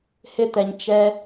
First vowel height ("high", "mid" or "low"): high